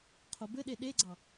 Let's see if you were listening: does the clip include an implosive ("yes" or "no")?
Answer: yes